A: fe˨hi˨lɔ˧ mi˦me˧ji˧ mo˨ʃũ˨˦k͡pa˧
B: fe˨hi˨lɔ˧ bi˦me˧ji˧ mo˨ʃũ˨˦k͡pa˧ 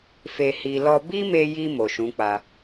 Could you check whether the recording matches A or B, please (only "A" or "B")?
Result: B